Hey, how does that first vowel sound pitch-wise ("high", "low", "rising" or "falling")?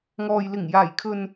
low